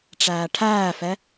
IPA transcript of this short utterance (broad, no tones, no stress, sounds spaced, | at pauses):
ʈ͡ʂ æː ʈʰ æː f ɛ